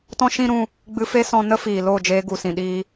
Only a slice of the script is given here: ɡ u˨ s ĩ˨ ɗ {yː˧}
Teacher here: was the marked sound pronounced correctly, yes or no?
no